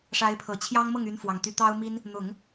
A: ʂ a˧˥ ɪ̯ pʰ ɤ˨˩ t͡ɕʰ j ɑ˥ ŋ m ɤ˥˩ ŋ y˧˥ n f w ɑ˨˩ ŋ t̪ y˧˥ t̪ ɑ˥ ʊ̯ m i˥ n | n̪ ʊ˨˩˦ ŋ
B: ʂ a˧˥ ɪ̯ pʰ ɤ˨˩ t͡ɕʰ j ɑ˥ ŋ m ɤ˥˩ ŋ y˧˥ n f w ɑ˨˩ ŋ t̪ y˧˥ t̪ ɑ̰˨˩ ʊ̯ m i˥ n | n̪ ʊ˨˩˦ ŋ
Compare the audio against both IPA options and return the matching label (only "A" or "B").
A